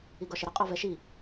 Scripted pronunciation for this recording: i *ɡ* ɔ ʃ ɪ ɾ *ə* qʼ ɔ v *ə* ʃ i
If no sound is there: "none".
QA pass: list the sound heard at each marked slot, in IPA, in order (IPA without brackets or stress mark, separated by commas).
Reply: ɡ, ə, ɛ